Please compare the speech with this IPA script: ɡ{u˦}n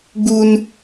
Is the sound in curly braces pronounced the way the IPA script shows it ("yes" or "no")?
yes